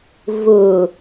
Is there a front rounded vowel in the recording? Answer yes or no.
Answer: no